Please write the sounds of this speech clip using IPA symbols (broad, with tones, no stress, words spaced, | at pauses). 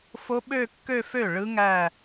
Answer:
fo˦˥ɓø˥˧kːø˥˧fø˥˩ ɭɯ˦˥ŋæ˥˧